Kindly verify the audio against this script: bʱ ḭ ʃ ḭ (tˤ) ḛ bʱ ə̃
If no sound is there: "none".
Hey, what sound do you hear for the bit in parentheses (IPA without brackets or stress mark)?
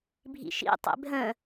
tˤ